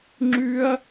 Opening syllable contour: high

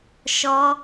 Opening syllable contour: high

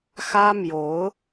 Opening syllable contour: high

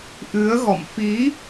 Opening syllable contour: rising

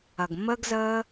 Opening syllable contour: low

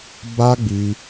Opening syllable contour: high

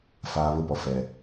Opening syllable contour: high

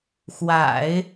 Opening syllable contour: low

